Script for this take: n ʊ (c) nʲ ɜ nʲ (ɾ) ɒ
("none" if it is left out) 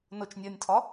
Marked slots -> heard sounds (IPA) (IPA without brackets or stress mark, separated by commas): t͡ʃ, tʰ